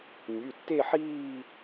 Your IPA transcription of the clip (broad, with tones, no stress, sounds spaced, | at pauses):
nʲ ʉ˩˧˩ tː e˥˧ ħ iː˥˧